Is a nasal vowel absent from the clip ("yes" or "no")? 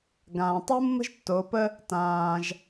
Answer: no